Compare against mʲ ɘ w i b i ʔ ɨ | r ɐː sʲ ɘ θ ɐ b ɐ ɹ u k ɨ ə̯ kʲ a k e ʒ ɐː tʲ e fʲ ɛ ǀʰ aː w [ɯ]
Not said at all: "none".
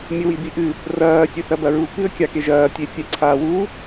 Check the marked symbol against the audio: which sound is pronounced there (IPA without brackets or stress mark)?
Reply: u